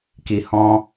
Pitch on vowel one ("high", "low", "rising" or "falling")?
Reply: low